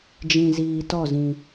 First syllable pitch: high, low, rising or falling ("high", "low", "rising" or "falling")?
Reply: low